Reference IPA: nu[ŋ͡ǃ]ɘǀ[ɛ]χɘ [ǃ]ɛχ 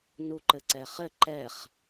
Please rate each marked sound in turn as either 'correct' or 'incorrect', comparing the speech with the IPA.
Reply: incorrect: ǃ, correct, correct

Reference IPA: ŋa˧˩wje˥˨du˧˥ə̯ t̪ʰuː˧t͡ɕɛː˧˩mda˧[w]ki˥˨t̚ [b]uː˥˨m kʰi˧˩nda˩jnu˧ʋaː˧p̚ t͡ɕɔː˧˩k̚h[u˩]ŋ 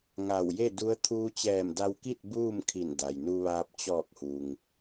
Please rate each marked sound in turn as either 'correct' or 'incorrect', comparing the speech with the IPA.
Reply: correct, correct, correct

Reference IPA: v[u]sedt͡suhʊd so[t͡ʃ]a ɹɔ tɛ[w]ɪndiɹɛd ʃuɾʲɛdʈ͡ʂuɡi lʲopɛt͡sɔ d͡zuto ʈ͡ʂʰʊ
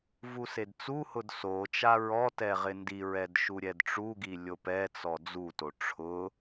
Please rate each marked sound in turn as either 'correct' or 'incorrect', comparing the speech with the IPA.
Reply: correct, correct, incorrect: ʁ

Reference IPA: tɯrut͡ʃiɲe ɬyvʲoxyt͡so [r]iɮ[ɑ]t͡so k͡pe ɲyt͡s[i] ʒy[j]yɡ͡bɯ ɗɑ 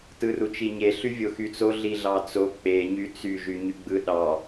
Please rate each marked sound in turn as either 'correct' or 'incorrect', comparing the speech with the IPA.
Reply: incorrect: ɮ, correct, incorrect: y, incorrect: ɲ

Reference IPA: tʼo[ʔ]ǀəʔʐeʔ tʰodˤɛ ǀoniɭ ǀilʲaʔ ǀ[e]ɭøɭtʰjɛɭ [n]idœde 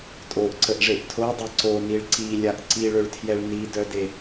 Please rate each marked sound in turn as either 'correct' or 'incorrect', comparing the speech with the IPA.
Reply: correct, incorrect: i, correct

